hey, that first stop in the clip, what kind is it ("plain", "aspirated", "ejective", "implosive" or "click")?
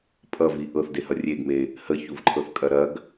ejective